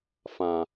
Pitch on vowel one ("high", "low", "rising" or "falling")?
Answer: low